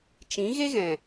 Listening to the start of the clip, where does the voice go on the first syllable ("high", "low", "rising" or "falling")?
rising